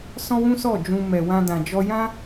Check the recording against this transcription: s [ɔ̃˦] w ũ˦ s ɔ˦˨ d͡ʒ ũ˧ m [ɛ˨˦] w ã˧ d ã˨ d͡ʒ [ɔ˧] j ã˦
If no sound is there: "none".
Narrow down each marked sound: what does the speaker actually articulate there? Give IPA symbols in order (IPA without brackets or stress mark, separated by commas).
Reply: ɔ̃˦, ɛ˨, ɔ˧